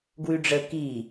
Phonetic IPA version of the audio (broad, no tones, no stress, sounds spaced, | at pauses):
ɡ w ʉ ɖ͡ʐ ə k i